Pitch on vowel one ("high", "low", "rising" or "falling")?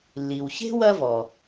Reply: low